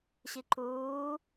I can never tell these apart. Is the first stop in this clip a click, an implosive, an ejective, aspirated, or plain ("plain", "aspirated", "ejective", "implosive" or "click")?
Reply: click